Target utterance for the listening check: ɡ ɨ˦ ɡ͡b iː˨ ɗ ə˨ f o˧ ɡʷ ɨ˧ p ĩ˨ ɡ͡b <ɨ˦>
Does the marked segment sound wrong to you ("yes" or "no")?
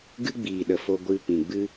no